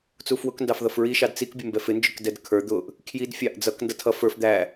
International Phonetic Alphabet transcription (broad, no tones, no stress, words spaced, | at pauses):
t͡sufwʊkndɑf ðʌfɹiʃɑd t͡sikbʲʊmbɛ fɪnd͡ʒʊkdɛd kʰə˞ d̪ʊʔ | kʰjidfʲɑʔ d͡zʌk ndʌtʰʌ fə˞f d̪æ